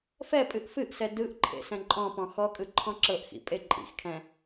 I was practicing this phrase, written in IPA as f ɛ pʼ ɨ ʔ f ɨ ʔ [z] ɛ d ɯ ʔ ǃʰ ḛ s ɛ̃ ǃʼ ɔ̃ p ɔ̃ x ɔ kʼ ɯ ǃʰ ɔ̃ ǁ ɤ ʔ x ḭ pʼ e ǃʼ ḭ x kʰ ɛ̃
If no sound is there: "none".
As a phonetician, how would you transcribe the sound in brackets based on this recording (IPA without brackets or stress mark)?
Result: s